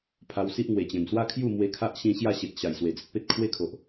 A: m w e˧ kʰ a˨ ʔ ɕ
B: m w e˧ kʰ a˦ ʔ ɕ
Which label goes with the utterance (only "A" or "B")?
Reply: B